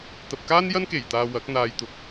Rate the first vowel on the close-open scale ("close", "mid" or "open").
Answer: open